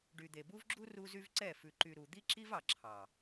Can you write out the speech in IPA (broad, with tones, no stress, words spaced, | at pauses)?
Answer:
ɖy˨d̪e˨bu˦vɡ͡ǁu˦ ru˦zy˦vǀɛ˦˨ fʉ˨ǃy˨ ɾu˨ d̪i˦ǁi˦v ɑ˨ǁʰɑ˨